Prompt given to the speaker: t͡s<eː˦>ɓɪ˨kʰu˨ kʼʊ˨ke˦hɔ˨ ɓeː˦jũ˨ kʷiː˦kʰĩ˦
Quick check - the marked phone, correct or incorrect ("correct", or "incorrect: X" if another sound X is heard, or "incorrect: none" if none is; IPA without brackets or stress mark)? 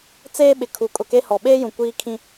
correct